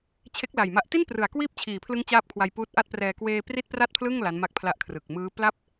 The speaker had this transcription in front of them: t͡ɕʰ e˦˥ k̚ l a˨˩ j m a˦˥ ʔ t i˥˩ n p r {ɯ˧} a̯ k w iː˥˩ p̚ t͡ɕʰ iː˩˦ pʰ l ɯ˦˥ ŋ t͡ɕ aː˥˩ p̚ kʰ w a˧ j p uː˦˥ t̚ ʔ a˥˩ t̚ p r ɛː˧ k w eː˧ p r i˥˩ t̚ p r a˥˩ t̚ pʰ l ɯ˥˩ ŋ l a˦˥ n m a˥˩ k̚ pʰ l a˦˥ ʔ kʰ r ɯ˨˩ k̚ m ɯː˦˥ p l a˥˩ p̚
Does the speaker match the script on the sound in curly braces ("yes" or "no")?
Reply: no